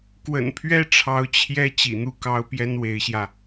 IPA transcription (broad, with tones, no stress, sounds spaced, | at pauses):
k w ə̰˨˩ n pʰ ɥ ɛ˥ ʈ͡ʂʰ ɑ˧˥ ʊ̯ t͡ɕʰ j ɛ˥ t͡ɕ ḭ˨˩ n̪ u˥˩ k ɑ˥ ʊ̯ p j ɛ˥ n w e˧˥ ɪ̯ ɕ j ä˧